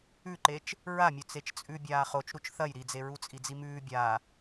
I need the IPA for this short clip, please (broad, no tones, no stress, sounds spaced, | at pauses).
ʉ ǃ e t͡ʃ | ɹ a mʲ ɵ t͡s e t͡ʃ t͡sʼ ʉ bʲ aː χ o t͡ʃ ɾ u t͡ʃ θ ɐ j ɾ i d͡z e ɹ u t͡sʼ i d͡z i m ʉː bʲ a